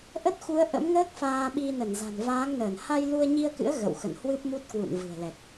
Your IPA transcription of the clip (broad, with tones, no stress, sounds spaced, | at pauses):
ʔ ə˦˥ t̚ x u˨˦ ə̯ ʔ ə̰˧˥ m ŋ əː˦˥ k̚ f aː˧ ɓ i˧ n ə˧˩ n z a̤˨˩ n v aː˨˦ ŋ n əː˧˩ n h a˧ j l u˧ ə̯ ɲ i˧ ə̯ k ɨ̰˧˥ ə̯ ɣ ə̰˧˨ w x ə̰˧˨ n h w ɨ˦˥ p̚ m u˦˥ t̚ k w ṵ˧˨ n v ɨ̤˨˩ ə̯ l ɛ˨˩ k̚